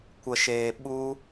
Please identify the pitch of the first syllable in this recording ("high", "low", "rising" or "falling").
low